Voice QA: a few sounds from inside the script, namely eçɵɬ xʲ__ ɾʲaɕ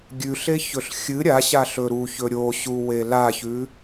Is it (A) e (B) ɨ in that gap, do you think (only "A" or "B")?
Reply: B